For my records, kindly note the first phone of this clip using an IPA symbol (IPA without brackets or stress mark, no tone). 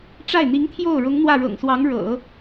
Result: ʈ͡ʂ